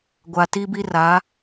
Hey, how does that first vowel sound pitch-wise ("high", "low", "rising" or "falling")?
low